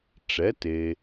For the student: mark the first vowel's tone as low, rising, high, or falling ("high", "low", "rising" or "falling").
rising